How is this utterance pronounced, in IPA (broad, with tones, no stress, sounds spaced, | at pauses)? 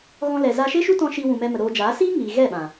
ɣ ɔ̃˧ l ɛ˨ z a˧ ʃ e˦ ʃ u˦ t ɔ̃˧ ʃ i˧ w ũ˨ m ɛ˧ m ə˨ ɾ oː˧ d͡ʒ aː˨˦ s iː˦ ŋ iː˨ ɣ ɛ˦˨ ɓ ã˨